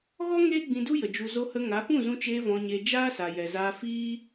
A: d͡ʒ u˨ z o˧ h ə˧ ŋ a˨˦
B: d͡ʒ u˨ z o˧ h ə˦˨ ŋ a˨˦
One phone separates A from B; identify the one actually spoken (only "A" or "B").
A